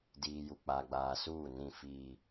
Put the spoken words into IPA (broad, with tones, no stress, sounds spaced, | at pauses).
d iː˨ j u˨ k͡p a˨ ɡ͡b aː˨ s uː˦˨ n ĩ˦˨ f iː˦